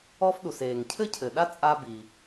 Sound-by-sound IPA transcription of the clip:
ɔ˥ f ɗ u˩ s eː˩ ŋ cʰ ɘ˥ cʰ ɘ˩ ɗ a˥ t͡sʼ a˥ b i˩

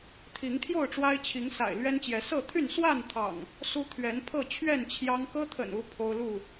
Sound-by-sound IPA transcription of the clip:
t̪ʰ i˨˦ ŋ t̪ʰ j o˥˨ ʊ̯ ʈ͡ʂ w a˦ ɪ̯ t͡ɕʰ i˨˦ ŋ s a̰˨˩ ɪ̯ l ɥ ɛ˦ n t͡ɕ j ɛ˨˦ s ɤ˥˨ t̪ʰ y˥˨ n s w a˥˨ n t̪ʰ ɑ̰˨˩ ŋ | s u˦ t̪ʰ ɥ ɛ˨˦ n pʰ ɤ˥˨ t͡ɕʰ ɥ ɛ˥˨ n t͡ɕʰ j ɑ˦ ŋ k ɤ˦ t̪ʰ ə̰˨˩ n u˨˦ pʰ o˦ ʊ̯ l u˥˨

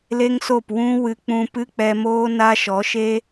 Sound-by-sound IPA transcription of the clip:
l e˦ ŋ s o˦˨ p w ũ˦ w ɨ˧ k͡p ũ˧ p ɨ˦ k͡p ɛ˧ m oː˦ n a˦ ʃ ɔ˨˦ ʃ e˦

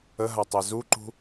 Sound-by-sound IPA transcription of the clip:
ə ɦ a tˤ ɛ z u ǃ ṳ

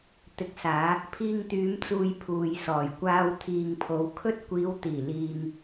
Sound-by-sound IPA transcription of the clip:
t̪ ɪ˨ k̚ s aː˨˧ | pʰ iː˧ ŋ t̪ yː˨˧ m t͡s uː˨ j pʰ uː˨ j s ɔː˨˩ j kʷ aː˧ w t̪ʰ iː˨ ŋ pʰ o˨˧ w kʰ ɵ˥ t̚ kʷ iː˨˧ w t̪ iː˨˩ l iː˨ ŋ

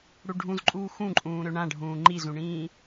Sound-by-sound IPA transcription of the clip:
ɽ u ɖʱ ũ z ǃʼ uː x ũ ǃʼ ũː ɾ ø ɳ ã ɖʱ ũː ŋ͡ǃ i z ũ ɳ ĩː

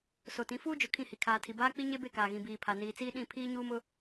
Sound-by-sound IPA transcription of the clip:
s o˨ t ĩ˨˦ f uː˦ d͡ʒ ʊ˨ kʰ ĩ˦˨ h i˨ kʰ aː˨ tʰ i˨ b aː˦ k͡p i˦ ɲ e˦ b e˦˨ k aː˨ ɣ ĩ˨ b iː˨ pʰ a˨ n iː˨ t͡s iː˦ ɗ ĩ˦˨ pʰ iː˦ ɲ uː˦ m ʊ˦

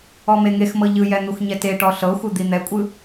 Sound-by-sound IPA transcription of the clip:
ɔ m e ŋ e x m ɤ ʎ ɯ j ɛ n̪ u x ɲ ɛ t e ʈ ɔ ɬ ɤ xʷ ɯ d̪ i n̪ ɛ kʷʼ ɯ

